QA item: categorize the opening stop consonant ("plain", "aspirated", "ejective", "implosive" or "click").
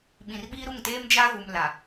implosive